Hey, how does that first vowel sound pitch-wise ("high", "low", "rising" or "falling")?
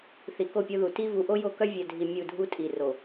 low